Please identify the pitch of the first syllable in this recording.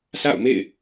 falling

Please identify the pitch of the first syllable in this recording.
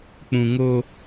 low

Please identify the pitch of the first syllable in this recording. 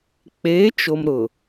rising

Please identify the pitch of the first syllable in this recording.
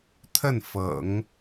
falling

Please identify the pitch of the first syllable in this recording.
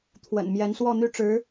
low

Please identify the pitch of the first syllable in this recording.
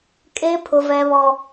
high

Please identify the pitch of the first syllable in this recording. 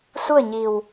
falling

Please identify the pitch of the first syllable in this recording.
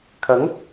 rising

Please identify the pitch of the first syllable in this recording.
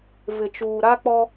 low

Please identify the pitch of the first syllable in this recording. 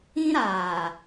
high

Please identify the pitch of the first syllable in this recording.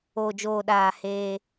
low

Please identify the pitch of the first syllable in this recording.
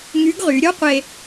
rising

